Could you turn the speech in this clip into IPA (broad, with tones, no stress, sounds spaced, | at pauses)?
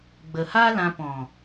ɡ͡b ə˨ h a˦ l ã˧ p ɔ̃˨